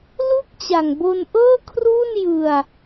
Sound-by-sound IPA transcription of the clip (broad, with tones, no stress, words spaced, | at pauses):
lu˥˩k̚t͡ɕa˨˩ŋ bo˧nʔɤː˥˩kʰruː˥˩n jɯ˧a̯